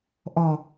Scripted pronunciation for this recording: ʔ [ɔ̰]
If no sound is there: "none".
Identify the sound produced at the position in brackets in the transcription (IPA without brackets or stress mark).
ɔ